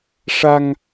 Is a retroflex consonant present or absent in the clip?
present